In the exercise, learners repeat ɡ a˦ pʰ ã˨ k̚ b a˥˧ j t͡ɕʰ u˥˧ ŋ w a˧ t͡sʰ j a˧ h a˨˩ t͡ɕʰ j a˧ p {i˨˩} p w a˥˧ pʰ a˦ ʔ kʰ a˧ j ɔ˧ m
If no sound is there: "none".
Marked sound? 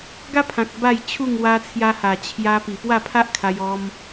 i˨˩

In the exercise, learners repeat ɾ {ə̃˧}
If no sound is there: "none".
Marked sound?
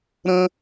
ə̃˧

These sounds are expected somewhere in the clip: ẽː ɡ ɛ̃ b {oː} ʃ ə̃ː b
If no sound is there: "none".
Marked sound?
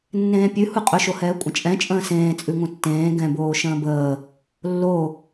oː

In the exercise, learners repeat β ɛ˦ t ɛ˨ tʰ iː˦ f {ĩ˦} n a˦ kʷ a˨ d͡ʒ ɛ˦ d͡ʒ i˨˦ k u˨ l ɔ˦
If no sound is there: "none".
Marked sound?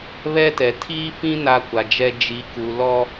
ĩ˦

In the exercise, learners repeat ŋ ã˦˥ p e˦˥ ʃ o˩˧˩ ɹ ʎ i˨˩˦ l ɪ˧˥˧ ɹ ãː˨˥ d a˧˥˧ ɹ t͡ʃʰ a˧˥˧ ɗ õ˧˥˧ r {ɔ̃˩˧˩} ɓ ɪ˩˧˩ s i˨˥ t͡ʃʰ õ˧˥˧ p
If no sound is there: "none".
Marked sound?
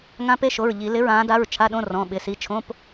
ɔ̃˩˧˩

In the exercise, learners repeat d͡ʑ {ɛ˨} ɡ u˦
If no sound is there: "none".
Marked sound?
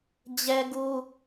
ɛ˦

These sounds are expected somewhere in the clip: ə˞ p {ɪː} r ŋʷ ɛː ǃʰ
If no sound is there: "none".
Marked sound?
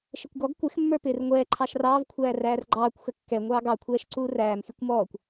ɪː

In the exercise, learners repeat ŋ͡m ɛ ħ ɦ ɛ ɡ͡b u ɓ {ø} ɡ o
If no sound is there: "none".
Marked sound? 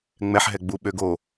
ø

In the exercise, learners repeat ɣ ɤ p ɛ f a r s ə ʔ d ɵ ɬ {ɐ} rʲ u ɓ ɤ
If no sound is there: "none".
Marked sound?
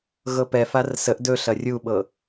ɐ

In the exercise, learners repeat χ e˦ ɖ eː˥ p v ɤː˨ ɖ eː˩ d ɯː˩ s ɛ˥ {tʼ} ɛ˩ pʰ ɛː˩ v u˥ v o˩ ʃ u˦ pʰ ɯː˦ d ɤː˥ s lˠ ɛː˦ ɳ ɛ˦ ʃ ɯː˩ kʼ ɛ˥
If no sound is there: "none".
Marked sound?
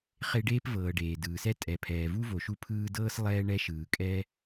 tʼ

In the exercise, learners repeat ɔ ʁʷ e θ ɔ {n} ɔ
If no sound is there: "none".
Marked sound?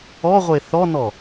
n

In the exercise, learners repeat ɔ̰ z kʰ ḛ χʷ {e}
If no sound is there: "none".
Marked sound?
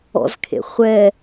ɛ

